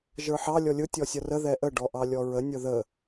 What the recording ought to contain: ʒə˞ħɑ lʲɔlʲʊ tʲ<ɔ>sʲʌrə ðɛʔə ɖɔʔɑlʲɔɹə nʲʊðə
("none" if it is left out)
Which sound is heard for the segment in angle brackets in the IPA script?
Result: ɔ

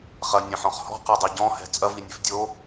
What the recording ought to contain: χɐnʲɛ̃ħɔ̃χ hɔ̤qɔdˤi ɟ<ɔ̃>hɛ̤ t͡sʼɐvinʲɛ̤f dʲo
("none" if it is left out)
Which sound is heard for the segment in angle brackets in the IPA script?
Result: ɔ̃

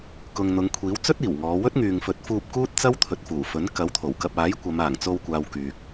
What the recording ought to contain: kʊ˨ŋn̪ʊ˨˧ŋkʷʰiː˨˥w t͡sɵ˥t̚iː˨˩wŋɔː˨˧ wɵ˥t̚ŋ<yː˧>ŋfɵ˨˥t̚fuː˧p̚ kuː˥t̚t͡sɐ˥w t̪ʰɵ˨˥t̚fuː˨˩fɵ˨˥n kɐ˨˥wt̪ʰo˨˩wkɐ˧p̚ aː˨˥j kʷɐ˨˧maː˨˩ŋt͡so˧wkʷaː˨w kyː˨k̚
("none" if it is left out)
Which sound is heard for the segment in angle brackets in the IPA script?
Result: yː˨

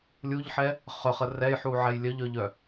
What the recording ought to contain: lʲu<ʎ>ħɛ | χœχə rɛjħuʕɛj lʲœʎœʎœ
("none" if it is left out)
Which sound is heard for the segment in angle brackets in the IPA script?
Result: ʎ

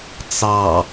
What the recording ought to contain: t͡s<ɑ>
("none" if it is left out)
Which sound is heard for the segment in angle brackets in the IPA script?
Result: ɑ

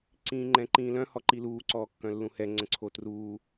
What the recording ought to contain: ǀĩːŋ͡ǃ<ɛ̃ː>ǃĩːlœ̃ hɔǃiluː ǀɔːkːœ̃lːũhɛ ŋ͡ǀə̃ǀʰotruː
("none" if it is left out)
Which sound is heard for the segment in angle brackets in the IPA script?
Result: ɛ̃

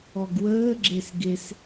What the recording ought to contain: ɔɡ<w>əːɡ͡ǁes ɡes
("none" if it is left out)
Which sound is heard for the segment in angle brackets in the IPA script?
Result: w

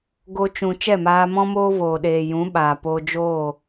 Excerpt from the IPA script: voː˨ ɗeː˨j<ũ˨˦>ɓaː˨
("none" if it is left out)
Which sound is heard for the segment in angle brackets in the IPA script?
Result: ũ˨˦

